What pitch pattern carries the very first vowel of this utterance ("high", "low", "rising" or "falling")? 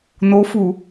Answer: rising